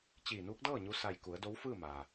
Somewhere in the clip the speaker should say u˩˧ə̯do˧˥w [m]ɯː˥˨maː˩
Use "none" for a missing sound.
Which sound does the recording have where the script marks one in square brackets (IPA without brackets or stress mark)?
f